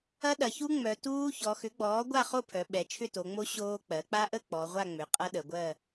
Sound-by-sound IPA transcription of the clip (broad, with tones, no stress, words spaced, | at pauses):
ɐ˦˥ɗɐ˩˧çu˦˥ ŋ͡mœ˩˧tuː˦˥ çɔ˩˧xʏ˩˥ɡ͡bɔː˩˥ ɡʷa˥˨χo˥˨pʰœ˩˧ ɓɛ˩˧t͡ʃʰʏ˥˨to˩˧ŋ͡mo˦˥ ɕoː˦˥k͡pɜ˩˥ k͡pa˦˥ʔə˥˨ k͡pɔ˩˧ʁʷa˥˨ ŋ͡mʏ˩˥qʼɐ˦˥ɗə˩˧ɡʷɜ˥˨